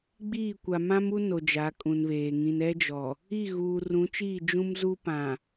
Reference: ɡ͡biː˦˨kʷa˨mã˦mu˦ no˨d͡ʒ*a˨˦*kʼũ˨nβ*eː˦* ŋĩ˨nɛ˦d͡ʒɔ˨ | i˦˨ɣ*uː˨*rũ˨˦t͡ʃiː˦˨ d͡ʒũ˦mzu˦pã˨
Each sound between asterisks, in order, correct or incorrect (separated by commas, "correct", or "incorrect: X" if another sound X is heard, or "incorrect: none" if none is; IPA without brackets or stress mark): correct, incorrect: eː˨, correct